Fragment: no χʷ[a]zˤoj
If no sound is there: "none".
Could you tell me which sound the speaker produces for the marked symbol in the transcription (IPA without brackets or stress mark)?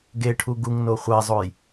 a